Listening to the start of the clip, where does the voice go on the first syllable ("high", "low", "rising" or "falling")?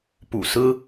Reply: low